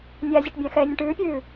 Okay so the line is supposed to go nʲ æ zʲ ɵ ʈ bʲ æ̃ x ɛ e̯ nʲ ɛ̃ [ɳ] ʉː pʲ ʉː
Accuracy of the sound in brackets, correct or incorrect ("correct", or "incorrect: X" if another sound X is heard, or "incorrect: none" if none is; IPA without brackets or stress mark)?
incorrect: ʈ